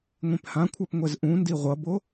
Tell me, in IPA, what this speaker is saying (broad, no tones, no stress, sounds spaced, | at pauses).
ŋʷ ẽ p h ã kʷʰ a p ŋʷ ɛ z ʔ ũ n d i ʁʷ ʌ b o